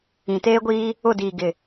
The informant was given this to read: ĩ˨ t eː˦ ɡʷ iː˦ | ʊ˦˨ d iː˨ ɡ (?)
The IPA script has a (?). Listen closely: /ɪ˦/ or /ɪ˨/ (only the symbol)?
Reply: ɪ˨